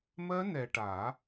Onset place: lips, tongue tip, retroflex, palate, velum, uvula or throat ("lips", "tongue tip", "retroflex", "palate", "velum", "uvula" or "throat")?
lips